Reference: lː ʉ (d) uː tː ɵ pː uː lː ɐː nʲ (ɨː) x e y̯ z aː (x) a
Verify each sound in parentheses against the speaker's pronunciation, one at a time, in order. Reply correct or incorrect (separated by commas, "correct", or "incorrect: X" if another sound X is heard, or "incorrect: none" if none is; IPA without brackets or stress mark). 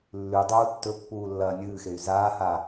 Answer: incorrect: dˤ, correct, incorrect: h